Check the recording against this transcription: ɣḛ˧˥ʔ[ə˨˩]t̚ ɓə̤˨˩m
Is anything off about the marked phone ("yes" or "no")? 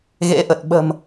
no